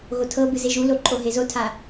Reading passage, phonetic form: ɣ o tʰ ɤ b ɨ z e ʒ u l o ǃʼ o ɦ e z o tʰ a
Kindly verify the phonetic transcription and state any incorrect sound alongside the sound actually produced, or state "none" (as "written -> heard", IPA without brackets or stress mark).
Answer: none